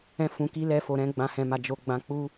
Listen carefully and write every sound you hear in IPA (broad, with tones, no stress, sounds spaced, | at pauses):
ɛ̃˦ f ũ˧ k i˦ l ɛ˦ f o˧ ɾ ɛ̃˦ ɡ͡b ã˧ h ɛ̃˧ m a˧ d͡ʒ o˧ ɡ͡b ã˧ k͡p u˦